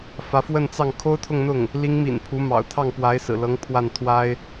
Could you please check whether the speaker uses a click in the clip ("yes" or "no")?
no